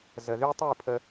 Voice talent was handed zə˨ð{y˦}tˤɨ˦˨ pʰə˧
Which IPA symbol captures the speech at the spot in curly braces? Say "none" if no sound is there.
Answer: y˦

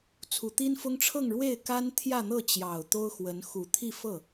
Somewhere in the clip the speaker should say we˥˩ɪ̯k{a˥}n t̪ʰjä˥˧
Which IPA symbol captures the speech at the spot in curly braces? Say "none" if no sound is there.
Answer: a˥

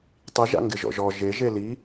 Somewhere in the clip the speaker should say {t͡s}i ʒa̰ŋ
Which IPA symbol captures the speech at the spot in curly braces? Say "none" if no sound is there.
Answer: tˤ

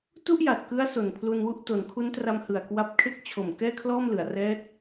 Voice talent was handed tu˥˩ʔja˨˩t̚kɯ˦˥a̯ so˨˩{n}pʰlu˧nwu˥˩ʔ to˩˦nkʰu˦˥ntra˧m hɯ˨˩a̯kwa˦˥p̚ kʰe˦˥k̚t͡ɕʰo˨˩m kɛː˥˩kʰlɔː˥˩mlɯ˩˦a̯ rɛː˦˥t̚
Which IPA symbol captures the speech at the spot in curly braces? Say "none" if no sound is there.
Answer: n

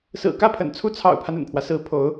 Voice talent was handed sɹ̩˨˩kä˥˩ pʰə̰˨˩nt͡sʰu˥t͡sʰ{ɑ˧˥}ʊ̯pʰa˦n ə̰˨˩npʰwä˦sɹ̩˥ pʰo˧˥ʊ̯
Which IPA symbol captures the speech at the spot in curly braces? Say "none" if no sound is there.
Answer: ɑ̰˨˩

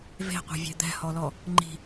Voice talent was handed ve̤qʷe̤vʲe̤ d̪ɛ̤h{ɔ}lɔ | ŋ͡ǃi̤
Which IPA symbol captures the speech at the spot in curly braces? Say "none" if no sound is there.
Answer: ɔ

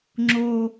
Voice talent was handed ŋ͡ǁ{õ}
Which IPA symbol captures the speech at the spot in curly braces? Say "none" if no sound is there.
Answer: o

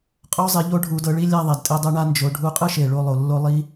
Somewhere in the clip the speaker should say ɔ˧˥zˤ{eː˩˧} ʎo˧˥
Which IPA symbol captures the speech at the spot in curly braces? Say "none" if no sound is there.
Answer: e˩˧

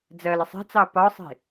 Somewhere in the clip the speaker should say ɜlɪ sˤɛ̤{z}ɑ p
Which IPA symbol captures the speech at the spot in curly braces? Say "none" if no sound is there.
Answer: t͡s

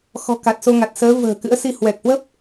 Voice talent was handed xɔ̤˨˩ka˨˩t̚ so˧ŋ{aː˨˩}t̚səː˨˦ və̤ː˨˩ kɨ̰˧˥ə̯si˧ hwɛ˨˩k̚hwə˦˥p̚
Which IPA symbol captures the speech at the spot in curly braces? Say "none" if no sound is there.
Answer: a˨˩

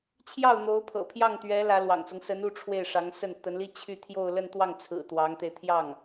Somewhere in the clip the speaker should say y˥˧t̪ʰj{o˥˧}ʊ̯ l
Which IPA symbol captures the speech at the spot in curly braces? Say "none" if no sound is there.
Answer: o˥˧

